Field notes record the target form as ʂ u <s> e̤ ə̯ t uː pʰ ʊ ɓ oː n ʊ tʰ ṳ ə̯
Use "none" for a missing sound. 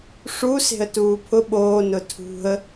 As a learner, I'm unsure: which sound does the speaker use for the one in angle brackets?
s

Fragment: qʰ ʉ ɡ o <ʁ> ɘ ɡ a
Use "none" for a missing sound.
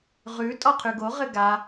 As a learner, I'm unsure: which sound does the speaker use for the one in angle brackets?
ʁ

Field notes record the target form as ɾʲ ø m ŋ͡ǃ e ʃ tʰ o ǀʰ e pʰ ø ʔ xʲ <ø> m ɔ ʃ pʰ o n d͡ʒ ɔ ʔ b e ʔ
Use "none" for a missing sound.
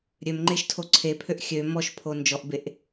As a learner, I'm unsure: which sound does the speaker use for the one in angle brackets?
ø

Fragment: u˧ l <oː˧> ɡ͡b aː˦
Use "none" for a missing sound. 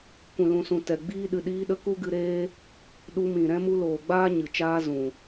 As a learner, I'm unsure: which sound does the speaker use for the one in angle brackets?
oː˨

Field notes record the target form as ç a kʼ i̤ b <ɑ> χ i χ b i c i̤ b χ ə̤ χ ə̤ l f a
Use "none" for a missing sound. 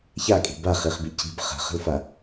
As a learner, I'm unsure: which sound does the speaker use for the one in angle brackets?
a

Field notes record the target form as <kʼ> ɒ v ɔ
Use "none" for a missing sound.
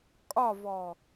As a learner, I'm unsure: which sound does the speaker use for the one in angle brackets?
kʼ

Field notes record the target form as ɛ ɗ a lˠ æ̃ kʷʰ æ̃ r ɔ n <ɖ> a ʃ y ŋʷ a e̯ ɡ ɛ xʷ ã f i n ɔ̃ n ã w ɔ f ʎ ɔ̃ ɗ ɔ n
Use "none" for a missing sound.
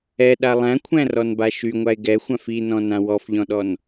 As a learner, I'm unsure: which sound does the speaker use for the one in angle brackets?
b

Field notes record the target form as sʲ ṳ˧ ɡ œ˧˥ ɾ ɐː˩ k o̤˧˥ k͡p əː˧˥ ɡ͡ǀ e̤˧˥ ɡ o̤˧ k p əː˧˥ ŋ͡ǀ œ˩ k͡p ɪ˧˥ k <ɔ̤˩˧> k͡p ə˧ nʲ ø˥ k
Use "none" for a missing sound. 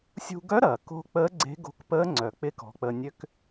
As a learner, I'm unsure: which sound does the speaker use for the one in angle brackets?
ɔ̤˩˧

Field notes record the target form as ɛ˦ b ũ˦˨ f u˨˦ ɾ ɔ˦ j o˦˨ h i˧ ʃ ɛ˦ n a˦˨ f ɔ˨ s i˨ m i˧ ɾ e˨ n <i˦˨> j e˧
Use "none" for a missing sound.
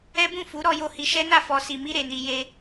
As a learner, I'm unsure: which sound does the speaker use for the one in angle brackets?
i˨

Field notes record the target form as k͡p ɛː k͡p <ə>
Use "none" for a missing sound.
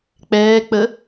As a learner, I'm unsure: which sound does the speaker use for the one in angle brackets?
ə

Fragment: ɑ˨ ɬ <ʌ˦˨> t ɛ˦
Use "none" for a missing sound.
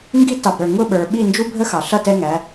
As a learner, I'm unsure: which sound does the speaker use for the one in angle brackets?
ʌ˦˨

